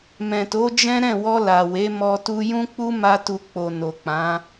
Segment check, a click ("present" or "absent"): absent